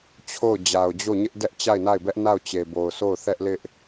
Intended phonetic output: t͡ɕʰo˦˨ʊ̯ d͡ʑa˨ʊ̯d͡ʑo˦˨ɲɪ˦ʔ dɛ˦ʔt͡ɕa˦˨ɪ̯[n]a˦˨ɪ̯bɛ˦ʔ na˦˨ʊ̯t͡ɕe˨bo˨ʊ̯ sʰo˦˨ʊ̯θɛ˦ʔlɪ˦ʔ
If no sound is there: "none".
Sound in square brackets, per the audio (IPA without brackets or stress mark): n